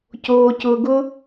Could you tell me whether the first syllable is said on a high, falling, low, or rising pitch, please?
high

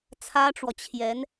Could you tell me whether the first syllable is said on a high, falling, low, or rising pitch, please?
high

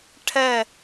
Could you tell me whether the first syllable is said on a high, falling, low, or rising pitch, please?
falling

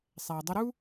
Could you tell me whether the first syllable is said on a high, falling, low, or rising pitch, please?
low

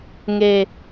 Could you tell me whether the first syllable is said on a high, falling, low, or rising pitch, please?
low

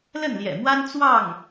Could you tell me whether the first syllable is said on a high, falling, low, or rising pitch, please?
falling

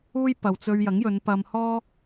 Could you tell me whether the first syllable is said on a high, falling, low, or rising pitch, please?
high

